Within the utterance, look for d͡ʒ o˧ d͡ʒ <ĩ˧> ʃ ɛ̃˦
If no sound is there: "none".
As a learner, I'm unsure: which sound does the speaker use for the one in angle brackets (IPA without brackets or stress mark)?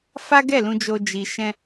i˧